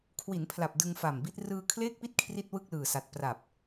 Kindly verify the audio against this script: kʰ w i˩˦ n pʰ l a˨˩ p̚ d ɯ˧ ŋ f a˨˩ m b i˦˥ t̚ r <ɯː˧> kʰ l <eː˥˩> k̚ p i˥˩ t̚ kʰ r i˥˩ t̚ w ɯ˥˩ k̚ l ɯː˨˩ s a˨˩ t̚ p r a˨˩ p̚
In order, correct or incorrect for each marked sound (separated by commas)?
correct, correct